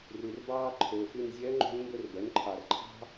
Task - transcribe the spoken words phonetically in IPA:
r ʉ˨ r b ɑː˥ ǃʰ ɵː˨ f ʉ˥˧ n zʲ œ˧˥ ŋ͡ǃ o̤˧˥ n m b ɵ˥˧ r b œ˩˥ n ǃʰ ɑ˨ r ǃʰ ɑ̤˥

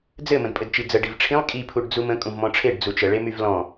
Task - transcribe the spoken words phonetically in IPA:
d͡z ɘ m ə̃ d pʼ ɘ d t͡ʃ i d͡z ə ɖ i v ʈ͡ʂʰ ĩ lˠ kʼ i pʰ u ɖ d͡z u m ə̃ kʼ ũ v m ɔ̃ ʈ͡ʂʰ e ɖ d͡z u t͡ʃ ə ɭ e m y v l ɔ̃

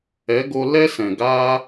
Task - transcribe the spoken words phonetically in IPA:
ɛ˨˦ ɡ o˧ l ɛ˦ s ɛ̃˨ ɡ aː˦

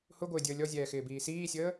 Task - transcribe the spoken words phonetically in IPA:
h ʊ ɡʷ ɪː dʲ əː lʲ ɔ zʲ ɛː x ɪː b iː s iː sʲ əː

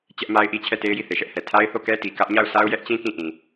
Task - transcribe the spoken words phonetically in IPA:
t͡ɕ ɛ˦ ʔ m a˦ ɪ̯ ʔ i˦ t͡ɕʰ ɛ˦˨ t e˦ ɪ̯ j i˦˨ θ e˨ ʃ ɛ˦ ʔ h ɛ˨ tʰ a˦ ɪ̯ θ o˦˨ k ɛ˦ t i˨ k ä˦ ʔ ɲ a˦˨ ʊ̯ s a˦ ʊ̯ j ɛ˦ ʔ t͡ɕ ĩ˦ k ĩ˦˨ ʔ ĩ˨

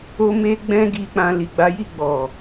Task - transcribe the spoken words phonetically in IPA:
o˦ m e˦ ɡ͡b ɛ̃˦ ɡ i˧ k͡p ã˧ l i˨ ɡ͡b a˨˦ j i˦˨ ɡ͡b ɔ˨

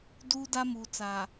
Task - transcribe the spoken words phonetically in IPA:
d uː˦ d a˦ m uː˨ t͡s aː˨

